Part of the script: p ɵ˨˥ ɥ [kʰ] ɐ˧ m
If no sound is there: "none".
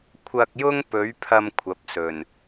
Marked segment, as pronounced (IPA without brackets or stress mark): pʰ